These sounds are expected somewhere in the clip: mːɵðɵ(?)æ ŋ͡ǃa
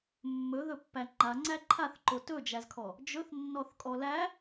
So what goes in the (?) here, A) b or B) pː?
B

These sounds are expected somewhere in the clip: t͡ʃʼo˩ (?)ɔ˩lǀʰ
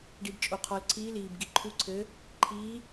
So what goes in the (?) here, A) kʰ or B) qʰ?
B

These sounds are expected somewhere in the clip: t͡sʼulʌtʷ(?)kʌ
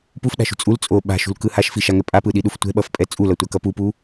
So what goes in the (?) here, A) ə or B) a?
B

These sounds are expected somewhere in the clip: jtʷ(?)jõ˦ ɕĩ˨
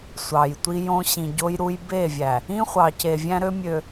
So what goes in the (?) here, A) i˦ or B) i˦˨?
A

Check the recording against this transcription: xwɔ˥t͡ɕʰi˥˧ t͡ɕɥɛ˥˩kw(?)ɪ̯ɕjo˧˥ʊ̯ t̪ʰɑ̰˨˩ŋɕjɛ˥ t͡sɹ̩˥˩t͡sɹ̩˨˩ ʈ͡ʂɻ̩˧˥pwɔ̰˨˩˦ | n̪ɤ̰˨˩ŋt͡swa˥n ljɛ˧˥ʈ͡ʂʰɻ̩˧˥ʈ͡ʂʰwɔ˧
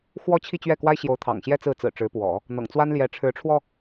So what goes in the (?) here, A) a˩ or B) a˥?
B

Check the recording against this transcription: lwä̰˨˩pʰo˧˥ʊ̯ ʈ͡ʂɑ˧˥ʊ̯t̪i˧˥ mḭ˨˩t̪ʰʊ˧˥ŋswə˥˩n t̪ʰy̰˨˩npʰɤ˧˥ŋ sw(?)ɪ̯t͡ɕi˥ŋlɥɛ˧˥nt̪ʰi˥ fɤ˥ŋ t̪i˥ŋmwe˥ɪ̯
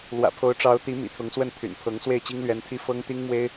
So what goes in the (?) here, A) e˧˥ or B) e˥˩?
B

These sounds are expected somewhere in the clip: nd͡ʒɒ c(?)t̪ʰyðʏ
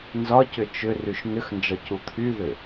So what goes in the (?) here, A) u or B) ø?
A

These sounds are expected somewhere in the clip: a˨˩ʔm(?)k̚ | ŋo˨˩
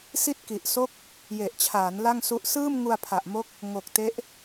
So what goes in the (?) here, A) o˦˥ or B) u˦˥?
A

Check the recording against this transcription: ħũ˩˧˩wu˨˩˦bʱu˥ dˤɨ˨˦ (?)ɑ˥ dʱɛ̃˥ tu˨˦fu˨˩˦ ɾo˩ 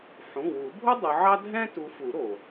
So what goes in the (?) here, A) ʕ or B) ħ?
A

